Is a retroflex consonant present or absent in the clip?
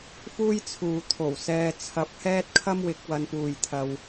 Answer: absent